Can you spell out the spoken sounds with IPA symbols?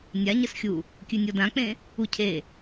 nʲ a ɲ ə s xʲ u | kʲ ʉ nʲ ɔ d ã k͡p ẽ | u cʰ e

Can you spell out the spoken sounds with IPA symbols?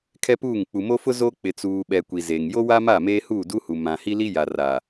kʰ ɛ˦ p uː˦˨ ŋ k͡p u˨ m o˦ f ʊ˦ z oː˦ k͡p ɪ˨ t͡s uː˨ ɓ ɛ˨ kʷ i˨ z eː˨ ŋ j o˦ w a˦ m a˦˨ m eː˦ h uː˦˨ d u˦ h u˨ m ã˨ h i˦ l i˦ j a˨ r a˨

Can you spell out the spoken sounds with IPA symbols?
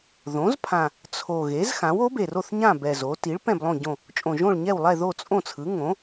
ð õ˩˥ z pʰ ã˨˩ | t͡sʰ o˨˩ ɣ e˩˥ z x ã˩˥ w o˩˥ b e˨˩ r o˥˨ θ ɲ ã˥˨ b ɛ˨˩ z o˩˥ t i˩˥ ɭ p ɛ̃˥˨ b lˠ õ˥˨ ɟ õ˥˨ | t͡ʃʼ õ˨˩ ʒ õ˥˨ ɭ ɲ ɛ˥˨ w lˠ ɛ˥˨ ð o˥˨ t͡sʼ õ˥˨ t͡sʰ ɯ˩˥ ŋ õ˩˥

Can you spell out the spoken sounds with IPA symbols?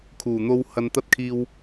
kʰ uː˨˩ n̪ o˧ w h ɐ˨ n t̪ ɐ˧ t̚ kʰ iː˨ w

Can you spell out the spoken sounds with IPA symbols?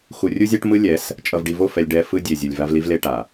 x u˨ rʲ u˦ zʲ a˦ ʈ m ɯ˦ lʲ ɛ˨˦ s | t͡ʃʼ ʌ˨ v ɖ i˨ v o˦˨ f ɛ˨ lʲ ɖ ɛ˨ f ɯ˦ dʲ e˨ zʲ ɯ˨ lʲ v a˦ v l i˦ v l e˦ ʈ a˨

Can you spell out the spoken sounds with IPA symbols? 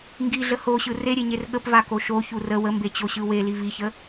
ŋ ɡ i ɮ ə h o ɕ ɯ r e ɾʲ e ɲ e r ɠ ə p v a k o ʃ o ç u r ə w ə m b e t͡ɕ o ɕ ɯ w e l i v i ç ə

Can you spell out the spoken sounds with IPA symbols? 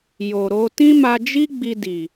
j o˨ ɾ o˧ t ĩ˦ m a˧ d͡ʒ i˦ ɡ͡b i˧ d i˨

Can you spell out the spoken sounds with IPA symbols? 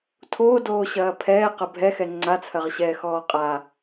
tʰ oː d oː ɕ ɐː pʰ ɛː q ɐ bʱ ɛ x ɛ ŋ͡ǀ a t͡sʰ ɐ ʁ ɕ ɛː x ɔː qʼ a

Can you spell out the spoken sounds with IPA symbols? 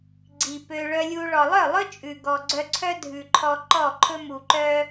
ɡ͡ǀ i˨ p ø˧ ɭ œ˧ lʲ u˧ ɭ ɔ˨ lˠ œ˦˨ lˠ ɵ˦ t͡ʃʼ ʉ˨ ɡ ɔ˨ ɡ͡ǀ œ˧ ǀʰ œ˦ dʱ ʉ˨ ǃʰ ɔ˧ ǃ ɔ˦˨ ǃʰ ɵ˦ m u˨ ǃ œ˦

